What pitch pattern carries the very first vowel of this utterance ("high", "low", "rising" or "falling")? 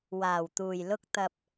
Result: low